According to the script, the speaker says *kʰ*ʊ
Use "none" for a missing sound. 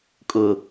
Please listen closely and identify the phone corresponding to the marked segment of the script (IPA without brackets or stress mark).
kʼ